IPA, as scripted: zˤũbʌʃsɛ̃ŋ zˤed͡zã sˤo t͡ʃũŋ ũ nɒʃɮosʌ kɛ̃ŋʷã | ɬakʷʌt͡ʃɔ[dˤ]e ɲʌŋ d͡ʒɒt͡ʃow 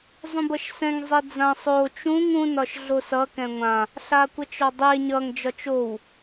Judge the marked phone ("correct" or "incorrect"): correct